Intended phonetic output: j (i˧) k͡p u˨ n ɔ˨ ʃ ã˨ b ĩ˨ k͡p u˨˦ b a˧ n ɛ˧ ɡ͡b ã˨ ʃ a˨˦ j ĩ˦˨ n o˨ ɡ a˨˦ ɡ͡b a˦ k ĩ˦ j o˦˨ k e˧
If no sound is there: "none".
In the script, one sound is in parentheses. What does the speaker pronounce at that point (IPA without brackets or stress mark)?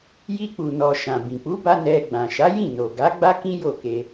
i˧